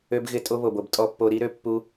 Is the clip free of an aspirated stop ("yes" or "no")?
yes